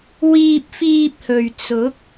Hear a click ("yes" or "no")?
no